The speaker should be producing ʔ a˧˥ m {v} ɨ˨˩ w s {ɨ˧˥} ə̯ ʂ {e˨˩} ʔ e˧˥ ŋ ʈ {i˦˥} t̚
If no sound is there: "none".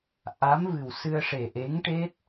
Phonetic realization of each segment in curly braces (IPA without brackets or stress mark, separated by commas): v, ɨ˧, e˨˩, e˦˥